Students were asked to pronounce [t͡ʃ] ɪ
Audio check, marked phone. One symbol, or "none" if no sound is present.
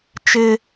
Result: t͡ʃ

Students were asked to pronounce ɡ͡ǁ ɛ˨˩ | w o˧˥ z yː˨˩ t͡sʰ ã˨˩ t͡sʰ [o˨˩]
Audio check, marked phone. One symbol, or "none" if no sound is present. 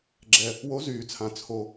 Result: o˨˩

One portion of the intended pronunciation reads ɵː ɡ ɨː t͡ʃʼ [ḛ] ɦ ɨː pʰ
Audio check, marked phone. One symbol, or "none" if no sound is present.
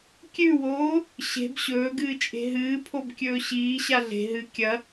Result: e̤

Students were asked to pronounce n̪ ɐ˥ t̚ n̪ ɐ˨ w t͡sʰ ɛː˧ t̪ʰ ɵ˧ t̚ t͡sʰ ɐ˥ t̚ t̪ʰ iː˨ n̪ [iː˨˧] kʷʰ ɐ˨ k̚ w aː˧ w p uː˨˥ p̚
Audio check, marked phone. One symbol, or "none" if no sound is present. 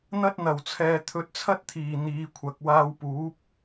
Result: iː˨˧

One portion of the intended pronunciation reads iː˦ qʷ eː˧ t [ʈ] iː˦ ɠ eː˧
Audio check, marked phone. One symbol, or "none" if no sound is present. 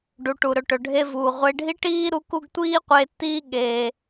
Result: t̪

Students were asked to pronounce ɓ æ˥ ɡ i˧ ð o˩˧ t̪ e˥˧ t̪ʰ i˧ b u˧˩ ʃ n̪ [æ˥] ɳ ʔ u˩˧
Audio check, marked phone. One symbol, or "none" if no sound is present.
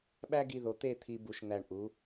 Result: æ˧˩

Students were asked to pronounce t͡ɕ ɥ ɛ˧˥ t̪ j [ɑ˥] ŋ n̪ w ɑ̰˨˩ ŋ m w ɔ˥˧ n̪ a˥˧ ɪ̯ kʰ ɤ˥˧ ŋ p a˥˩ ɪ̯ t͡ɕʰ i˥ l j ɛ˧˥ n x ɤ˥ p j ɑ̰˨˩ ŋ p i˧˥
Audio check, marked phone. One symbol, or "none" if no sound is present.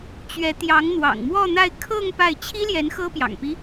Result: ɑ˧˥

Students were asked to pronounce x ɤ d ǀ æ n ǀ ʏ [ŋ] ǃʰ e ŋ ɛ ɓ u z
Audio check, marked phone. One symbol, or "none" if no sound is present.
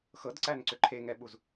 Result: none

